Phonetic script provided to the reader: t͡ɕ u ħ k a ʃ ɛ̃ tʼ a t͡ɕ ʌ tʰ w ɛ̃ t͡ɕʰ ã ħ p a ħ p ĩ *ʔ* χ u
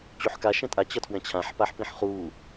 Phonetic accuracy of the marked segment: incorrect: ħ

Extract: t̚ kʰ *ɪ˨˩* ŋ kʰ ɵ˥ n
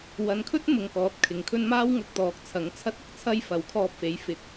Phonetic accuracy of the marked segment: incorrect: ɪ˨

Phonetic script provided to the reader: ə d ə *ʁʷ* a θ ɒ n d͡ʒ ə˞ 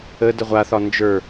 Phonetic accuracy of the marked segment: correct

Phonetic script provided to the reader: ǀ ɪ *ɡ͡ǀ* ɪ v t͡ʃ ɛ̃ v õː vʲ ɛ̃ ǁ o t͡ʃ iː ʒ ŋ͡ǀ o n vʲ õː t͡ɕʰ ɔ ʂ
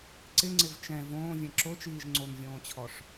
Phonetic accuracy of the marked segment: incorrect: ŋ͡ǀ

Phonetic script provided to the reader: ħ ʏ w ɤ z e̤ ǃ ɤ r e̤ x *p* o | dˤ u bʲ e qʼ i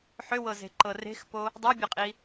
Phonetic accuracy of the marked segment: correct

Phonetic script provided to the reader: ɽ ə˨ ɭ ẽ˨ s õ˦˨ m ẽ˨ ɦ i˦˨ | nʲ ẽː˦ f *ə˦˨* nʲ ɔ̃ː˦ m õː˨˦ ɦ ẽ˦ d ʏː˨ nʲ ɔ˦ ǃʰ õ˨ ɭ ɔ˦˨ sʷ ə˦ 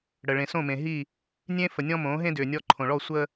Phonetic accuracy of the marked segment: incorrect: ə˨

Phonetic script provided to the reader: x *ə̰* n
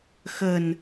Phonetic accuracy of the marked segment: incorrect: ə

